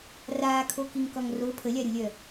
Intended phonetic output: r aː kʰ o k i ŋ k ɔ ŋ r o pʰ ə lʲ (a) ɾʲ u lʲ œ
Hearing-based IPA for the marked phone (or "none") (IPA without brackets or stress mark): a